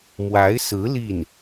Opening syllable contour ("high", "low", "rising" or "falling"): rising